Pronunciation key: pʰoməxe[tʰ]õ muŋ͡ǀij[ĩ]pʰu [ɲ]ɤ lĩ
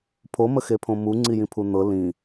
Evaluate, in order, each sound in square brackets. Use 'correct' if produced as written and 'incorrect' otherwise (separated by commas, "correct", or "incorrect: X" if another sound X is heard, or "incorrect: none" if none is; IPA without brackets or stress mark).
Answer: incorrect: pʰ, correct, incorrect: n̪